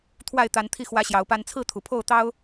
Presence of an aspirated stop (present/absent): present